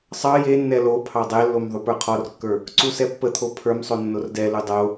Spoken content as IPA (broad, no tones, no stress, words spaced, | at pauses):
sˤɑ jenːɛ lopʰɑ dˤelːom ðˤupə˞qʰɔrkːə˞ | ǀusɛpːət̪ʰo pʰə˞msˤo nːordɛlu dˤo